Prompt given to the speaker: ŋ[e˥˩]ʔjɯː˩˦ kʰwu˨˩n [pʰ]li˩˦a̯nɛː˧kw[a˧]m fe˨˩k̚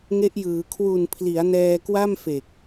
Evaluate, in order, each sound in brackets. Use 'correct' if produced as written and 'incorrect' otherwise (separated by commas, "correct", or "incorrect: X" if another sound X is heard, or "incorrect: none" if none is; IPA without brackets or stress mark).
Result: incorrect: e˦˥, correct, incorrect: a˥˩